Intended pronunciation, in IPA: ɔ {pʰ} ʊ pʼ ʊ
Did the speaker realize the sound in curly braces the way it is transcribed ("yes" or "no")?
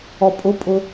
no